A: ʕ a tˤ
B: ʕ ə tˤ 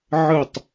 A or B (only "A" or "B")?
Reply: B